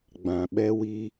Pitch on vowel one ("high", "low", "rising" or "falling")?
low